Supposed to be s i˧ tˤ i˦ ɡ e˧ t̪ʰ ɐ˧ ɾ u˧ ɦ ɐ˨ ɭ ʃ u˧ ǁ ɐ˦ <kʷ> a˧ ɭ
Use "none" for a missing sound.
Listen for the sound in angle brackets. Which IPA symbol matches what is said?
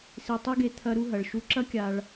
kʲ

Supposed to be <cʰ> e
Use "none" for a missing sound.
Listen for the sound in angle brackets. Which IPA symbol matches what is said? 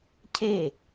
cʰ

